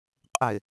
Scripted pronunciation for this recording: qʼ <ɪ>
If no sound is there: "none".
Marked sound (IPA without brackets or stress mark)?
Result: ɪ